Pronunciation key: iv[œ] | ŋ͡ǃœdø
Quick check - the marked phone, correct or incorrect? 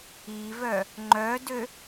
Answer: correct